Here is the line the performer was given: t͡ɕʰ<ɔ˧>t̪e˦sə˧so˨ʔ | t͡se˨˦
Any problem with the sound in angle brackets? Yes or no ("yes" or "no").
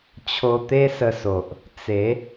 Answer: yes